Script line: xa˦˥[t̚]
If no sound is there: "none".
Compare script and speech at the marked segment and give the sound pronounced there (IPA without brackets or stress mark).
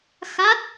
t̚